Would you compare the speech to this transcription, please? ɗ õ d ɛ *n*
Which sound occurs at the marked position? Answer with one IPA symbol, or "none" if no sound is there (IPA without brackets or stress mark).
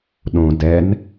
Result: n